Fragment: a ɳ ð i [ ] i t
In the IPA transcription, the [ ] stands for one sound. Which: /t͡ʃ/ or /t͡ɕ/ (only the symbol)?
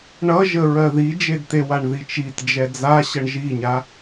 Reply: t͡ʃ